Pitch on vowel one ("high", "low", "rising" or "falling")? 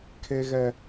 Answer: high